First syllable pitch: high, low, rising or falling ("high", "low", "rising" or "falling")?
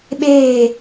falling